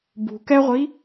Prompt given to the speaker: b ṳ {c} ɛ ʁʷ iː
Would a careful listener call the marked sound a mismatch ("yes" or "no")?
yes